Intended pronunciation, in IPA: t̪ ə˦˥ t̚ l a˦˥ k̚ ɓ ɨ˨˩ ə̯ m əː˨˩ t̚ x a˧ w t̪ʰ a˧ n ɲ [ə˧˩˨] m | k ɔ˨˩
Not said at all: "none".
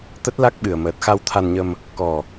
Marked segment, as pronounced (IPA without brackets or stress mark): ə˧